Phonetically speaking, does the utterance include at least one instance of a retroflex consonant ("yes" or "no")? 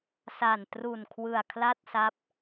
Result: no